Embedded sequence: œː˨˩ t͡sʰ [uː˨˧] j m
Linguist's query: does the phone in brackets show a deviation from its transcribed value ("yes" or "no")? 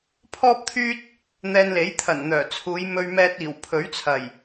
no